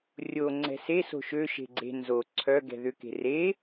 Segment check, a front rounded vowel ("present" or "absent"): present